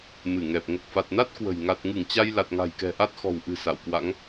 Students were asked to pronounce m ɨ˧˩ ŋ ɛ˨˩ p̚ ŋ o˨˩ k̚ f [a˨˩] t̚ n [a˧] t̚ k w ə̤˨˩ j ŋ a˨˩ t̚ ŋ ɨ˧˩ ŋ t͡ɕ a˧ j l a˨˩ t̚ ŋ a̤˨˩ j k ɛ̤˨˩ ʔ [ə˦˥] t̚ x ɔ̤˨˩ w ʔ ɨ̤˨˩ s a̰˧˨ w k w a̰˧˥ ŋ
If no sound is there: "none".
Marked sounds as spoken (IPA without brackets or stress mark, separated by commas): a˨˩, a˦˥, a˦˥